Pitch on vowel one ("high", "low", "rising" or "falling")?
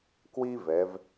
high